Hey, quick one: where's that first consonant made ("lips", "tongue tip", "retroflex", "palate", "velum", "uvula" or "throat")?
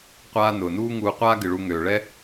uvula